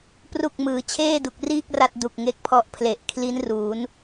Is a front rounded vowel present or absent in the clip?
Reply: absent